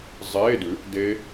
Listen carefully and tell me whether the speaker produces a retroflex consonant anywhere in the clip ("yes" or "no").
no